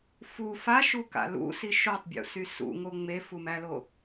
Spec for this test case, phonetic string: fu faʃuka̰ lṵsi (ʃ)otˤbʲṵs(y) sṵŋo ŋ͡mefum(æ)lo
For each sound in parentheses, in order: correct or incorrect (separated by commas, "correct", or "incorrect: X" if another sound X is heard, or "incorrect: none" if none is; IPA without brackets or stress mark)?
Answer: correct, correct, correct